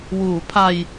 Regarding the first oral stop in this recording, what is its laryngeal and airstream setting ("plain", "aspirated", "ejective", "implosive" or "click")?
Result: aspirated